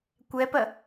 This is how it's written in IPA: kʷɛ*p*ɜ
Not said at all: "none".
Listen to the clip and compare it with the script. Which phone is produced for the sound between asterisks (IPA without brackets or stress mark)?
p